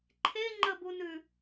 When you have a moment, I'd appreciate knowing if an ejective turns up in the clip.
no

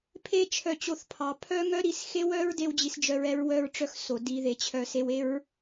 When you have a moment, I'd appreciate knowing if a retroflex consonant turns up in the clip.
yes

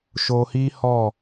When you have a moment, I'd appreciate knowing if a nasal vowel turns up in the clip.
no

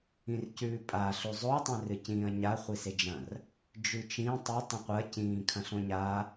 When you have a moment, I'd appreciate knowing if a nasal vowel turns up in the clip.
yes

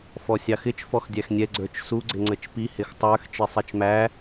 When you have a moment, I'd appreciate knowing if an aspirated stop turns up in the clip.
no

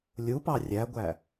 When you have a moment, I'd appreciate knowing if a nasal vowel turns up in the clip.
no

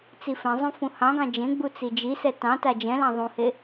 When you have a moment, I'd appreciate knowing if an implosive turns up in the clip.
no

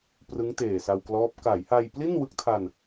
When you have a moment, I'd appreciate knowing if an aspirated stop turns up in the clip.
yes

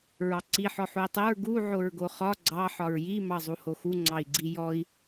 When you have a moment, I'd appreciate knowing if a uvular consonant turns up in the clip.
yes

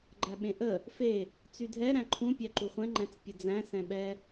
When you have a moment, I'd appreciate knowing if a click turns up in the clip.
yes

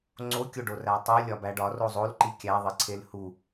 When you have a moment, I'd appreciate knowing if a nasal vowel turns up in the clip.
no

